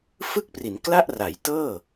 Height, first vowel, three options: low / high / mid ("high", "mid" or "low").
high